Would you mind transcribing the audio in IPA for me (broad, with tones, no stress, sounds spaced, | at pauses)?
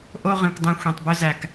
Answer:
ʔ o˦ ʁ ĩ˨ kʷ dˤ ɛ̃˧ xʷ ĩ˨ tˤ b ɵ˧ z æ˨ k